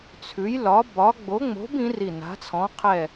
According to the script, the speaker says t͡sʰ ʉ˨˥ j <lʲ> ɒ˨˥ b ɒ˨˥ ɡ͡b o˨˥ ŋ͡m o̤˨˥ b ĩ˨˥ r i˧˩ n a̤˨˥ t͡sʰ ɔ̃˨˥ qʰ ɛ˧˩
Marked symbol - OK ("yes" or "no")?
no